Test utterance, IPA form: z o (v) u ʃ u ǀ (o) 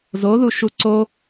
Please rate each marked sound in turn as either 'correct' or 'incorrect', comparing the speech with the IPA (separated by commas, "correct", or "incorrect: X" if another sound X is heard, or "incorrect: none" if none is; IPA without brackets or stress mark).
incorrect: ð, correct